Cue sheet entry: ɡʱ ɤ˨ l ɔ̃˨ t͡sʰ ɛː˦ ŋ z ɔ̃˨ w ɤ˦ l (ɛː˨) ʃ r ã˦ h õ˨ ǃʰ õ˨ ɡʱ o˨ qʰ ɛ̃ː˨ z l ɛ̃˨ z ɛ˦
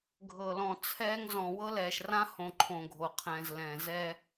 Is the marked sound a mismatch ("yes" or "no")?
no